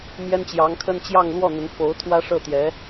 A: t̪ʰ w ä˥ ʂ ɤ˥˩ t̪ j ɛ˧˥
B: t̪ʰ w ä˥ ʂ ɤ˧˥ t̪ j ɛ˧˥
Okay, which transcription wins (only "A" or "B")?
A